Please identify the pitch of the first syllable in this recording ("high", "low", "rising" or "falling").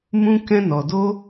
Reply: high